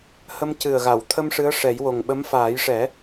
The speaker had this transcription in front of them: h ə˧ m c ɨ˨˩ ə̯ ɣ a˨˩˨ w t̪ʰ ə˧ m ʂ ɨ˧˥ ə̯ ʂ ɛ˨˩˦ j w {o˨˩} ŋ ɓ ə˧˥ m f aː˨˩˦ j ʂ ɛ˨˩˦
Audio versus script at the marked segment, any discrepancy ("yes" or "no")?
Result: no